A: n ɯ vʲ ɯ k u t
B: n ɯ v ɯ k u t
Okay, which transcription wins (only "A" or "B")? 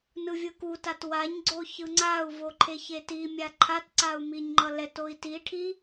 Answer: A